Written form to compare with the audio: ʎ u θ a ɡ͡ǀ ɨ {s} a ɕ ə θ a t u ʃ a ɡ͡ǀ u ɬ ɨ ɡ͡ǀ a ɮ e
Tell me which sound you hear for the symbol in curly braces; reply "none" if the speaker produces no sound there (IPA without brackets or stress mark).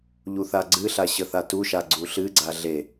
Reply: ɬ